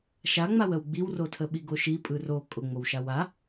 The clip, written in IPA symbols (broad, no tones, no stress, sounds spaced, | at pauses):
ʃ a ŋ͡m a w ə w ɡ͡b i w r o tʰ ə ɓ i ɡ o ʃ i pʼ ɯ r o kʼ ʊ ŋ͡m o w ʃ a w a